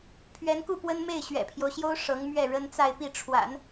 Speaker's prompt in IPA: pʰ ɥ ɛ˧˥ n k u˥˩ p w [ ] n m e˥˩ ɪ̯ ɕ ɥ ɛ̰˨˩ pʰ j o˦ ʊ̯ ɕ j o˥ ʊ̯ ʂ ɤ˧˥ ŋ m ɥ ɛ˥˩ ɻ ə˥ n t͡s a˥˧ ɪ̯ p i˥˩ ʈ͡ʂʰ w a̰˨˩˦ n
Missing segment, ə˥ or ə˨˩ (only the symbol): ə˥